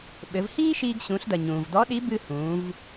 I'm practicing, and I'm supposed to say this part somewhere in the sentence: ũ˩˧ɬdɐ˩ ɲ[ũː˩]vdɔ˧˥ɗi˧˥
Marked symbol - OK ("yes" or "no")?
yes